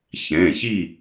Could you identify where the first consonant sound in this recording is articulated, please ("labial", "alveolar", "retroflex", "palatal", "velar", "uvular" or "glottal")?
palatal